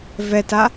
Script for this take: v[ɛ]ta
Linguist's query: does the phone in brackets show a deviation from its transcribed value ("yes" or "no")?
no